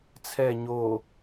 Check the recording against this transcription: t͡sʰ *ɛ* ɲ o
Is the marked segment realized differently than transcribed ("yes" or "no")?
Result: no